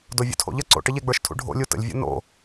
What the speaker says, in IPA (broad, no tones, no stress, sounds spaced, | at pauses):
d o vʲ ṵ tʰ o̰ ʎ ə ǀ o̰ ʈ ə ʎ e ɡ͡b ə˞ ʃ tʰ ṵ ɖʱ o̰ lʲ u t ə̰ lʲ vʲ o̰ n o̰